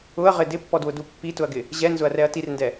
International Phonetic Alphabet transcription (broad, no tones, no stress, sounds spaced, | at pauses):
ʊ ɐ̯ ʁ ɪ d ɪ pː ɔ d w ʊ d u pː i t ʊ ɐ̯ ɡ ɪ | ʑ ɛ n z ʊ ɐ̯ r ɛ ɐ̯ t i r n d ɛ